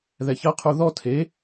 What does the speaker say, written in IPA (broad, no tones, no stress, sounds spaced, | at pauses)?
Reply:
ð ɛ ç ɐ qʰ u ð ɔ tʰ e